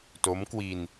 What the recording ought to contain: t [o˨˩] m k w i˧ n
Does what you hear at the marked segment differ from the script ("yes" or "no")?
yes